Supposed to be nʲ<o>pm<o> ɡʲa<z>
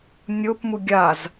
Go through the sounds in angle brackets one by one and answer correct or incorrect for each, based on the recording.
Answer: correct, incorrect: u, correct

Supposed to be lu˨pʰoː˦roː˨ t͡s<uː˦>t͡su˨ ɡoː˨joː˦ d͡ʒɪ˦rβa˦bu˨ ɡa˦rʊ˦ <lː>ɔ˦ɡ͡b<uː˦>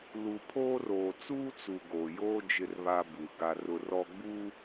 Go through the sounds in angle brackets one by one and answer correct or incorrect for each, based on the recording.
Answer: correct, incorrect: r, correct

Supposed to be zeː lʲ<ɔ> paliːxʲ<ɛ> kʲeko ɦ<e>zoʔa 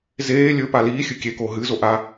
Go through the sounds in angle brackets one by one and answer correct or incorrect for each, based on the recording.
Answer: incorrect: ɵ, incorrect: ɨ, incorrect: ɨ

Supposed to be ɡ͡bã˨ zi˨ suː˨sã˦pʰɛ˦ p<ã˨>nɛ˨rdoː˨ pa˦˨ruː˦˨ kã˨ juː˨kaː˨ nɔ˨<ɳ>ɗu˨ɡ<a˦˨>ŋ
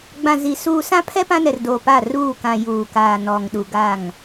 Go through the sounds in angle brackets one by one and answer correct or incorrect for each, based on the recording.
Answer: incorrect: ã˦, incorrect: ŋ, correct

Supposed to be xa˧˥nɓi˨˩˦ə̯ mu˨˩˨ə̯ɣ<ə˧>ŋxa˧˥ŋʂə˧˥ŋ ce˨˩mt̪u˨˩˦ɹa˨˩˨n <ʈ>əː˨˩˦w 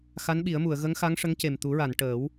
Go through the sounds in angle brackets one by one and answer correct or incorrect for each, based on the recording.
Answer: incorrect: ə˧˥, correct

